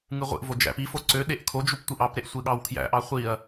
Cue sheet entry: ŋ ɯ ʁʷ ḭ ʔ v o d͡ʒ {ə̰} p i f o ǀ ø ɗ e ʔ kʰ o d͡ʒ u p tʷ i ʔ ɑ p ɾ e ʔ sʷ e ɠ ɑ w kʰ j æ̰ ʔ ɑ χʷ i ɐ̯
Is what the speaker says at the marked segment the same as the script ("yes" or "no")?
no